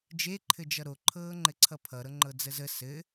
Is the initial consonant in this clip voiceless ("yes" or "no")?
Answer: no